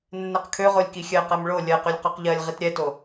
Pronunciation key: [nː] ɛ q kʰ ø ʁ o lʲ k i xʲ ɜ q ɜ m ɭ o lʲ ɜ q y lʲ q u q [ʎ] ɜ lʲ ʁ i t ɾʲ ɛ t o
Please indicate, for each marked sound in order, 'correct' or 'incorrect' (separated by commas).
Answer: correct, correct